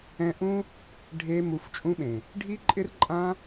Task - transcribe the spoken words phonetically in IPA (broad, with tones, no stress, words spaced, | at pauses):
ɛ̃˧ ʔũ˦ | ɖʱe˧ mu˧ft͡ʃʼũ˦ɓẽ˨ | ɖʱi˦ǃʼɪ˦r ǃʼã˦